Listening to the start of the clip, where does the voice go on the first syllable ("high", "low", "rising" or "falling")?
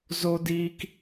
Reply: high